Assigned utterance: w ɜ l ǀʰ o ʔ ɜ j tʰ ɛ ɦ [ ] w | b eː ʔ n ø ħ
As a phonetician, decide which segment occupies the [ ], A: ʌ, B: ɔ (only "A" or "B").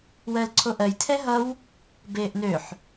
A